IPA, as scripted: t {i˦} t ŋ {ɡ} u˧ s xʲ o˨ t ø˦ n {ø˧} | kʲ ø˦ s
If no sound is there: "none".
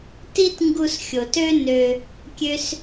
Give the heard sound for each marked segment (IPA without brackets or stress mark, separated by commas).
i˦, ɡ, ø˧